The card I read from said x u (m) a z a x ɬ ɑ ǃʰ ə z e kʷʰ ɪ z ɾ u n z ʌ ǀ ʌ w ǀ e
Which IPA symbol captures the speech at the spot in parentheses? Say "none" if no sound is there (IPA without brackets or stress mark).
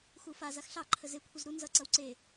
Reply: f